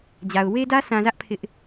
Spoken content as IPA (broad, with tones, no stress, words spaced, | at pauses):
d͡ʑa˨ʊ̯ we˦dä˦sã˨zä˦ʔ pʰɪ˦ʔ